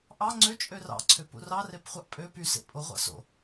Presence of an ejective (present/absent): present